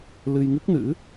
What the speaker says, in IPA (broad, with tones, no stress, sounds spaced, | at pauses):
l ɨ˧ j ŋ ɨ˦˥ k̚ n ɨ̰˧˥